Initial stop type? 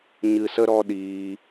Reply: implosive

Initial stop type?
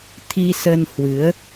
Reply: aspirated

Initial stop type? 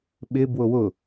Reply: implosive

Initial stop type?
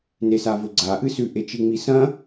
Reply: click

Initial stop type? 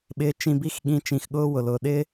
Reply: implosive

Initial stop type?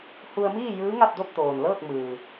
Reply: plain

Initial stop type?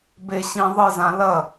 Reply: plain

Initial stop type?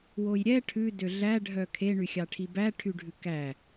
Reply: aspirated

